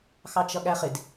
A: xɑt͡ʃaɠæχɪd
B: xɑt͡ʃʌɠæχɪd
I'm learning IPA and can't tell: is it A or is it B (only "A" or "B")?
B